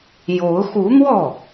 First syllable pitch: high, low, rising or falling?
rising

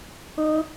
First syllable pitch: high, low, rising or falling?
high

